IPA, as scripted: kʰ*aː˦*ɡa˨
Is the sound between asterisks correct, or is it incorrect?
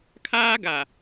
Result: correct